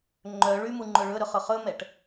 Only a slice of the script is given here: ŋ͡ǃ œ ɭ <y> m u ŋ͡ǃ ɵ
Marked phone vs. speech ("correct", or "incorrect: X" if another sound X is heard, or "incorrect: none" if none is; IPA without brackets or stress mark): correct